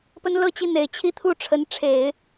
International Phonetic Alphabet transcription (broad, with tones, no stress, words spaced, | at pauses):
pə˥nlɤ˥˧t͡ɕi˥˩n̪e˨˩ɪ̯ t͡ɕʰi˥˧t̪ʰu˥˩ ʈ͡ʂʰə˧˥nʈ͡ʂʰe˨˩˦ɪ̯